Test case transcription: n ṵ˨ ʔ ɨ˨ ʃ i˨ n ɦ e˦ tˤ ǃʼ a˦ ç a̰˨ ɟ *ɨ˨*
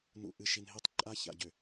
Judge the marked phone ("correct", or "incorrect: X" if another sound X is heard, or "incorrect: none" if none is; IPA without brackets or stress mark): incorrect: ʏ˨